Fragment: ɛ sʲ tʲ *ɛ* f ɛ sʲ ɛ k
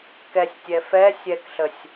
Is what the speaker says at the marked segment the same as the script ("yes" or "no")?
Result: yes